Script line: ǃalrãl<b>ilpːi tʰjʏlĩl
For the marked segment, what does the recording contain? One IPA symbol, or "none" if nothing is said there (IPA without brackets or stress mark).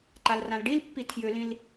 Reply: ɖ